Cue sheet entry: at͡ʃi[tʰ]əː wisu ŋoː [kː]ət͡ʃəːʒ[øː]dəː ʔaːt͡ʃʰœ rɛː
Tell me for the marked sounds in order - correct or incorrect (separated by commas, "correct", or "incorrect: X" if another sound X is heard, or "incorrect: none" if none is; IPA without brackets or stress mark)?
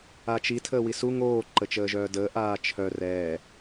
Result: correct, incorrect: ǃ, incorrect: œː